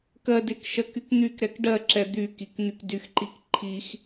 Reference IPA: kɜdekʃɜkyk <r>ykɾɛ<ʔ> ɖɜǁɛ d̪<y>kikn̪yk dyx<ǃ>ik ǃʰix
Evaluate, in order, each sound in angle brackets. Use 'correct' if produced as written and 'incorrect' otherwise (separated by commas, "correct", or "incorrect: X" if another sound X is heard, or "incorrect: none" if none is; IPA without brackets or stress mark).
incorrect: n̪, incorrect: k, correct, correct